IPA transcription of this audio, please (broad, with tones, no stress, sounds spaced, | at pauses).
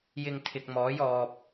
j ɪ˧ ŋ t̪ʰ ɪ˨ k̚ m ɔː˨˥ j ɔː˨ p̚